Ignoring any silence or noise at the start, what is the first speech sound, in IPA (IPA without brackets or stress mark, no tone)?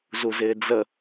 z